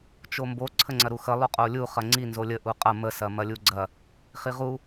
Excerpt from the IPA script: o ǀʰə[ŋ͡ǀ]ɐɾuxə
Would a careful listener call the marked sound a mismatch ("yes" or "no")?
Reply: no